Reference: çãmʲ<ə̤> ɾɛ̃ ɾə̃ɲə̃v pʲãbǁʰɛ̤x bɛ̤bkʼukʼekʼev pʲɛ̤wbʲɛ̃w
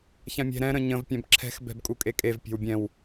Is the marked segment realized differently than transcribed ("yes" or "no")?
yes